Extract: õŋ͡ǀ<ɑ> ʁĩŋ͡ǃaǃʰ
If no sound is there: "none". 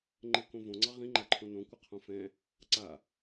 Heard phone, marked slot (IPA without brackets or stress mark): ɑ